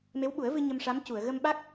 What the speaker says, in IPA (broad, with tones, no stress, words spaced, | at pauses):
me˧˥wɓu˨˩˦ə̯vɨ˧ ɲə˧mʂa˧˥mcu˨˩˨ə̯ ɣə˧mɓa˦˥k̚